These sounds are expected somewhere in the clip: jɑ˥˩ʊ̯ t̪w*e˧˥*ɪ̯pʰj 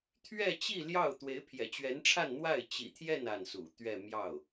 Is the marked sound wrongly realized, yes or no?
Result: no